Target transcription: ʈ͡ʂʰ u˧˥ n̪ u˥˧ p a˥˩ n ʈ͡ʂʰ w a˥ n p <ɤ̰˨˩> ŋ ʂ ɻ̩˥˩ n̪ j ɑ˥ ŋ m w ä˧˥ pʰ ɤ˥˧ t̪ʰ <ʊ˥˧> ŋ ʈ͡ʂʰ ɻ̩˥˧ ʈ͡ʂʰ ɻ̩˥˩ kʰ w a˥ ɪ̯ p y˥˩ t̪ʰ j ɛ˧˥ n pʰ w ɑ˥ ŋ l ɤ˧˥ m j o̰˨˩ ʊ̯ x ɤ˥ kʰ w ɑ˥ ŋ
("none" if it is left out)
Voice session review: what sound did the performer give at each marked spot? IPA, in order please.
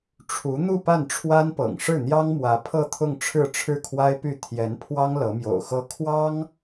ɤ̰˨˩, ʊ˥˧

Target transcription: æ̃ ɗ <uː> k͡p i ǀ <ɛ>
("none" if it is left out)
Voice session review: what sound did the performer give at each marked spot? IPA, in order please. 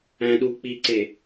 uː, e

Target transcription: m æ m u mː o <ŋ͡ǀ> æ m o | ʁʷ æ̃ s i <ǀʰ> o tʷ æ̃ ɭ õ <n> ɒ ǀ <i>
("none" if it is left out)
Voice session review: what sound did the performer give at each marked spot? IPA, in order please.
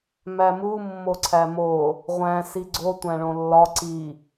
ǀʰ, ɡ͡ǀ, lː, i

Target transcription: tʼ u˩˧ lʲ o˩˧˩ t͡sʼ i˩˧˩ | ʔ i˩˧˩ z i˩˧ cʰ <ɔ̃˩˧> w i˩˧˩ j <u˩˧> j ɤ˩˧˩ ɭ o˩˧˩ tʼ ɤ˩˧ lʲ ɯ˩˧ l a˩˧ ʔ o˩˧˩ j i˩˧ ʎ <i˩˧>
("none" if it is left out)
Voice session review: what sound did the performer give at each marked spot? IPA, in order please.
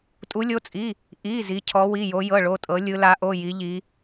ɔ˩˧, o˩˧, i˩˧

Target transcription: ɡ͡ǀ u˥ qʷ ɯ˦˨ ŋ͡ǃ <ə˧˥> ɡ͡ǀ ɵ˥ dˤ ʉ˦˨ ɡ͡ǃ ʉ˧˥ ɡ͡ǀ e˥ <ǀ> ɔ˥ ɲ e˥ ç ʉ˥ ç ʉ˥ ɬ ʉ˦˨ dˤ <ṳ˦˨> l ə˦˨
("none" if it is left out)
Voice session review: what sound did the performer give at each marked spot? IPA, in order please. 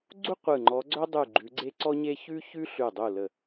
ɔ˧˥, ǀ, u˦˨

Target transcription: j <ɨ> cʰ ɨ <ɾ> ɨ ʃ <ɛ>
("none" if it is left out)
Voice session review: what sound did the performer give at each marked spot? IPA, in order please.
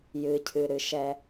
ɨ, ɾ, ɛ

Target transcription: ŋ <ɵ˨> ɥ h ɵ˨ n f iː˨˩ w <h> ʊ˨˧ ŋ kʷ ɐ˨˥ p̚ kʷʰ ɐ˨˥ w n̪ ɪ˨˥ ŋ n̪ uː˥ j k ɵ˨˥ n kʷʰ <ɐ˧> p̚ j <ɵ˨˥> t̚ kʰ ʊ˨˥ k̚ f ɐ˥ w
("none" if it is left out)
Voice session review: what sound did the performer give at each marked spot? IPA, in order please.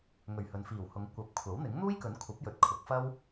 ɵ˨˩, h, ɐ˨˥, ɵ˨

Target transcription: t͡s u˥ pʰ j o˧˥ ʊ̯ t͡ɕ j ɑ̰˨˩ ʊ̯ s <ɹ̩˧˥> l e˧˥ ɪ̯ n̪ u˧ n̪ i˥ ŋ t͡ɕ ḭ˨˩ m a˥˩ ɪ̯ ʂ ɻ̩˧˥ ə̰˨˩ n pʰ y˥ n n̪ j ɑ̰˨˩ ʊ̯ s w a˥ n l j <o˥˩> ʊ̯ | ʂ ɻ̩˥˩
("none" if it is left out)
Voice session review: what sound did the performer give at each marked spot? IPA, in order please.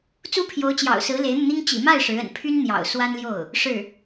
ɹ̩˧˥, o˥˩

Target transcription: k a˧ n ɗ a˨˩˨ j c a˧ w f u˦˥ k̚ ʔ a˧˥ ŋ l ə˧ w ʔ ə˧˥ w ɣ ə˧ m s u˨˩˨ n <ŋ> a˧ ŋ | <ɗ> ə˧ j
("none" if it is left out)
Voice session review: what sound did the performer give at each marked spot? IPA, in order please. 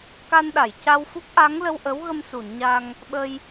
ɲ, ɓ

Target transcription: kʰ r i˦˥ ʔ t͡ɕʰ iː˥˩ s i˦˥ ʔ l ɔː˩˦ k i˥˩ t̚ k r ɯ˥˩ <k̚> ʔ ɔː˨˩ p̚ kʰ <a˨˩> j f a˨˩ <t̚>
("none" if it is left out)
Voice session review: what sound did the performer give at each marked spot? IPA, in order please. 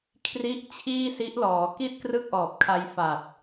k̚, a˧, t̚

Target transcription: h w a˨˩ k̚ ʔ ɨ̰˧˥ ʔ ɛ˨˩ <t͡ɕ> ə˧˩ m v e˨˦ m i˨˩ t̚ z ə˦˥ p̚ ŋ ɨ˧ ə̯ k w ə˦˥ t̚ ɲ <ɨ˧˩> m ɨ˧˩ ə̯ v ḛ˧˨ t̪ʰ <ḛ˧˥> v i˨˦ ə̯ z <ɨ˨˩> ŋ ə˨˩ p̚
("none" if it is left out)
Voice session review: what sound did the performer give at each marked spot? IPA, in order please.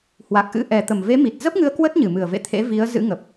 t̪, ɨ˧˩, ḛ˧˥, ɨ̰˧˥

